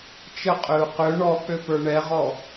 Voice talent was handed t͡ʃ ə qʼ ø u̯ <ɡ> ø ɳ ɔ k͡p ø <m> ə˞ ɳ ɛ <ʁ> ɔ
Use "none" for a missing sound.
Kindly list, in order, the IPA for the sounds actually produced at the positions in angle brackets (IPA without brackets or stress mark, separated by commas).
q, p, ʁ